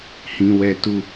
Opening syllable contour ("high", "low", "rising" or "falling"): low